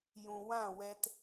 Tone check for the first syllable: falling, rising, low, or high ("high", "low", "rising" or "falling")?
low